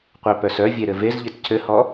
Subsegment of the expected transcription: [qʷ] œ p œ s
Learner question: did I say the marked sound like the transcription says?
yes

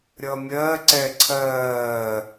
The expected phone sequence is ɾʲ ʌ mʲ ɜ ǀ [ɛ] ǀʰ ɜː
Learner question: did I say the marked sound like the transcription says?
yes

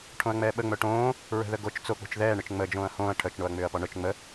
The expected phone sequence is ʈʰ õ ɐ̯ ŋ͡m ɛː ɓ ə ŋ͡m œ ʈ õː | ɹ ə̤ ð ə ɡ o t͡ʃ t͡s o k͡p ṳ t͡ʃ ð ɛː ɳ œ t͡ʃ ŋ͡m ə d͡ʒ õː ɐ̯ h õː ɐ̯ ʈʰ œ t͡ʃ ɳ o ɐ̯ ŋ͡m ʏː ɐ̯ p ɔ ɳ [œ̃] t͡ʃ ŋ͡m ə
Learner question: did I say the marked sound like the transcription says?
no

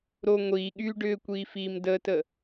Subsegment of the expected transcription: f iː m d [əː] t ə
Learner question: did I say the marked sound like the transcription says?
yes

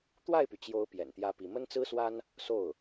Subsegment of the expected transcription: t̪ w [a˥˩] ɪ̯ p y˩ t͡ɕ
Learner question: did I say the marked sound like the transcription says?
yes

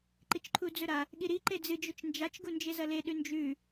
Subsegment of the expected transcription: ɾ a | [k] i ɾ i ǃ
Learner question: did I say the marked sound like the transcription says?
no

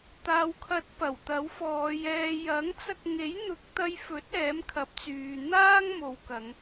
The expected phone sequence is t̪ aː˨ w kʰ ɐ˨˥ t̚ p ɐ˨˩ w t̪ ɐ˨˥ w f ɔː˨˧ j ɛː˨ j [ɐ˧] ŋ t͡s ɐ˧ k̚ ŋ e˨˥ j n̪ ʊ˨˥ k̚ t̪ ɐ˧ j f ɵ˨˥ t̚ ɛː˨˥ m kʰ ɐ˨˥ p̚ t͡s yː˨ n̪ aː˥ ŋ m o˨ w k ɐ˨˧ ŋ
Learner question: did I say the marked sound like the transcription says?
no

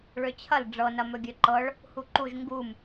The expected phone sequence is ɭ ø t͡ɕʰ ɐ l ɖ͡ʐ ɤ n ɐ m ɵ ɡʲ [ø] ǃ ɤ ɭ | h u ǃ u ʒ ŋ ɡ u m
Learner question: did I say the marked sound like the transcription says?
yes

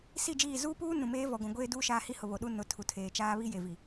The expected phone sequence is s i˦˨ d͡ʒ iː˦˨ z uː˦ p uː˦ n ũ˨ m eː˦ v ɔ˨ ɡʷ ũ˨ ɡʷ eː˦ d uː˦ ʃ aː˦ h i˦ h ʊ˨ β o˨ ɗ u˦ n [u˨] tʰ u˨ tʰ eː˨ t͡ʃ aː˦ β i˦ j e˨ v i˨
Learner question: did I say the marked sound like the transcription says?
no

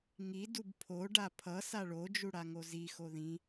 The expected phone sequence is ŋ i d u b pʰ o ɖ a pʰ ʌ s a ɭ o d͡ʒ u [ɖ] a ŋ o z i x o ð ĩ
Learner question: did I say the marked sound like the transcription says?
no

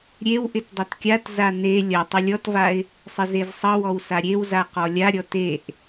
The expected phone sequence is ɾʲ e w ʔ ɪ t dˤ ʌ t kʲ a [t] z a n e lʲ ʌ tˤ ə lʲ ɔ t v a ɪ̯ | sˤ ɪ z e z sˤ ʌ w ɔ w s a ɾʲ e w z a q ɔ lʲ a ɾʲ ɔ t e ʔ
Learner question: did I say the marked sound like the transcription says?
yes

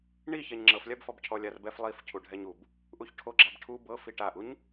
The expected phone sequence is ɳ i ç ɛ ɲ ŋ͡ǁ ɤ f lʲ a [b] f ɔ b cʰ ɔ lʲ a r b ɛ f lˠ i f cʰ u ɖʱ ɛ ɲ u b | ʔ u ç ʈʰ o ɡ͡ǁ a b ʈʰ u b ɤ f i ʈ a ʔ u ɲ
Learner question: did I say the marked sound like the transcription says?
yes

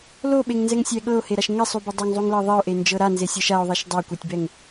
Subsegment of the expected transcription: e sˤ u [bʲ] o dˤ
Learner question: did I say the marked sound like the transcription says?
no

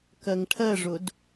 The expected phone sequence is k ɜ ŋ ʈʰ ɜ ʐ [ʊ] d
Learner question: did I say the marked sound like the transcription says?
yes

